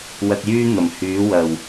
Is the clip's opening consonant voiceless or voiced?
voiced